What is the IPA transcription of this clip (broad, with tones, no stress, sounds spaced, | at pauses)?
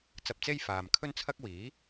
t͡s ɐ˧ p̚ t͡s e˥ j f aː˨ m kʰ ɵ˥ n t͡sʰ ɐ˥ k̚ w iː˨˥